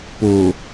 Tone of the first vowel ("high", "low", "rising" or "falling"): low